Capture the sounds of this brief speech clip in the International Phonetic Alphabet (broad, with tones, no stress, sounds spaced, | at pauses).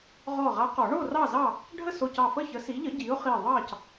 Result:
ʁ ɔ˧˩ ʁ a˨˥ q ɔ˨˩˦ ɳ o˥˨ r ɑ˥˨ z ɑ˥˨ | ɖʱ ə˥˨ s o˧˩ c ɑ˧˩ f ə˥˨ ç ə˨˥ s i˨˥ ʎ ə˨˥ ɟ i˨˥ ʊ̯ χ i˧˩ ðˤ ɑ˥˨ c